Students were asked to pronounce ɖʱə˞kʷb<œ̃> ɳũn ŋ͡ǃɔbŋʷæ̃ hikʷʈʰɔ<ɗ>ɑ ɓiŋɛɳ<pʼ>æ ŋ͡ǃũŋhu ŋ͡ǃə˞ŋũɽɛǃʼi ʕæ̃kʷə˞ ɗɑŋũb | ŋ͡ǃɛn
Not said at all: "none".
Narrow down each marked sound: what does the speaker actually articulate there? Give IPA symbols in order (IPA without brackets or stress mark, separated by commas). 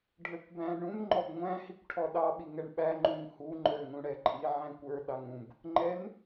æ̃, ɗ, ɓ